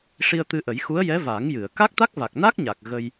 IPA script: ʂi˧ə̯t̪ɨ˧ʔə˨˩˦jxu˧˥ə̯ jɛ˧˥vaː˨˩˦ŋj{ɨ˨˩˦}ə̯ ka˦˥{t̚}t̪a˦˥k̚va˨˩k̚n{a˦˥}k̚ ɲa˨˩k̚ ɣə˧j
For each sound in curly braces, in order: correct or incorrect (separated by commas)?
incorrect, incorrect, correct